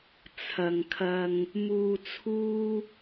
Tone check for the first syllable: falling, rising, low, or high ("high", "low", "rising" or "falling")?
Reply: low